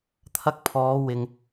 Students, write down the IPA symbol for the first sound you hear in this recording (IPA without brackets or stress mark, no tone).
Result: t̪ʰ